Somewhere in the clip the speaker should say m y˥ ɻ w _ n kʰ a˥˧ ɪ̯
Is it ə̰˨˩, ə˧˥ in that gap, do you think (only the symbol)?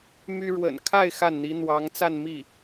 ə̰˨˩